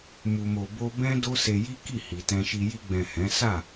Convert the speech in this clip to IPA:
m u˧ m o˧ b o˦ b ɛ̃˦ d o˦ s e˧ j i˦ k i˦˨ h i˨ t ɛ̃˧ ʃ i˧ j i˧ ɡ͡b ɛ̃˨ h ɛ̃˨˦ s a˦˨

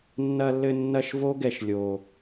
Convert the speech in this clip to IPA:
nː ɐ˧ lː ɘ˧ nː ɐ˦˨ ʃ v o˦ ɡ ɛ˧ ʃ lʲ o˨

